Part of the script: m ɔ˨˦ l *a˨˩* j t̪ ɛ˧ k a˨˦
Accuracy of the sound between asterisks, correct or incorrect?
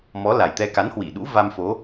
correct